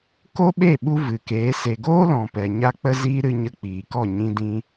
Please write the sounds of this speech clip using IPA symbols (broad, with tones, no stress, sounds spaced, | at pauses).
k o˦ ɓ e˦˨ ɓ u˧ v ɨ˨ k eː˨˦ s e˨ ɡ oː˦ l ɔ̃˨ p ɛ˨ ɲ a˧ k͡p ə˧ z iː˧ ɾ ɨ˧ ɲ ə˧ k͡p iː˨ k ɔ˦˨ ɲ ĩ˧ d ĩ˧